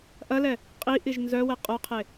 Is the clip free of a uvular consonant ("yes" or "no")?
no